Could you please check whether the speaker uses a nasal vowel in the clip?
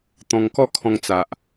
yes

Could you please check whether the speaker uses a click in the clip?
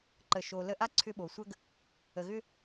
yes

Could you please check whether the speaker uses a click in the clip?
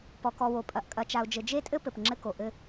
yes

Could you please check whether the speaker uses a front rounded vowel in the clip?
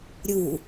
no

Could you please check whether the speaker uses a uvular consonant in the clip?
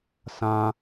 no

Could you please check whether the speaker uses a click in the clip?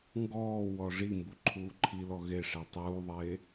yes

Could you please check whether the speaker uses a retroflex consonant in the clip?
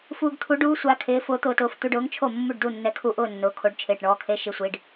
yes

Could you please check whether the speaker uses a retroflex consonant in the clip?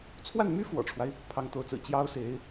yes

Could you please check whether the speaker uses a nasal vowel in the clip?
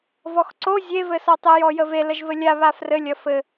no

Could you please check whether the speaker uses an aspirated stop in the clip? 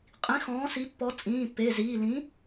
no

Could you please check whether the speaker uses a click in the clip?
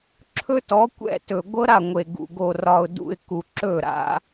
yes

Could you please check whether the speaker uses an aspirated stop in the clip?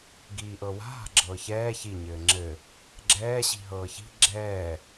no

